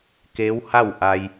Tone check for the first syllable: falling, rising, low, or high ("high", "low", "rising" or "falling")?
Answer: rising